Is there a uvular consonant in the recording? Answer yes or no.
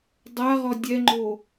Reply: yes